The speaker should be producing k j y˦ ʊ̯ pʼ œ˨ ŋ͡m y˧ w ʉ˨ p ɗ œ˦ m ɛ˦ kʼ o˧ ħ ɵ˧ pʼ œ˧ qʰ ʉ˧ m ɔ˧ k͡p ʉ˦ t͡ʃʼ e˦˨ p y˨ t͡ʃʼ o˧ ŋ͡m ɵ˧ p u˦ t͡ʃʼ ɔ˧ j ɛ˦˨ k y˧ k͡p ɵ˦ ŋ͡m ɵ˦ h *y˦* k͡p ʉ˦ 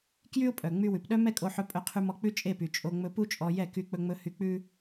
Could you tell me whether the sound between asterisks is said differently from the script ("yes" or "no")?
no